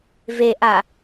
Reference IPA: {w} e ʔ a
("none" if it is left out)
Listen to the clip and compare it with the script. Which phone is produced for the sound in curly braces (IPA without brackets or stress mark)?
v